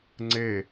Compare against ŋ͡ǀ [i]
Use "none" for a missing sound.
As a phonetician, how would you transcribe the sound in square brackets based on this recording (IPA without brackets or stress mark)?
e